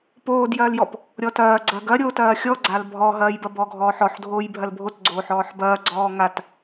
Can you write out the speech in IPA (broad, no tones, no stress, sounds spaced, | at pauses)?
p oː d j ɐː l j ɔ p | ɾʲ ɔ t ɐː ɡ͡ǀ ɐ ɡ ɐ ɾʲ oː t ɐː xʲ ɔ ɡ͡ǀ a l bʱ ɔ ɦ ɐː j b ɐ b ɔ ɡʱ ɔː ħ ɔ ħ dʱ oː j bʱ ɐ l bʱ o t ɡ͡ǀ oː ħ ɔː ħ b ɐː ɡ͡ǀ ɔː ŋ a t